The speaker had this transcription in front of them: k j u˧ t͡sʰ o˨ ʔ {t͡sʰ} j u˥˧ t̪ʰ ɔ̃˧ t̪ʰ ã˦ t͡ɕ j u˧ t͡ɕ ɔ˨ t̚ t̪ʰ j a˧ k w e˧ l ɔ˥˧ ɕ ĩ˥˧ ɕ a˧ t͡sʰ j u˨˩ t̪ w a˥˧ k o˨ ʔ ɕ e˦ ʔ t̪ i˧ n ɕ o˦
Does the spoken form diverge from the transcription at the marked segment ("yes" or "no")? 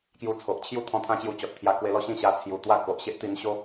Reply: yes